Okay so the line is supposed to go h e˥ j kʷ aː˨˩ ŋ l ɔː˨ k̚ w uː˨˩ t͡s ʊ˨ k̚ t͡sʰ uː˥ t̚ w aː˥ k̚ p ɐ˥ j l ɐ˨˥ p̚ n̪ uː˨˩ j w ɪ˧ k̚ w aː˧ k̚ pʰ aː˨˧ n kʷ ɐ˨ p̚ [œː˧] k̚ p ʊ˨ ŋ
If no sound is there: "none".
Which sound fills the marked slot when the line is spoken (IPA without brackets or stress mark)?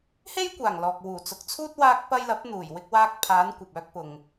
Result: œː˧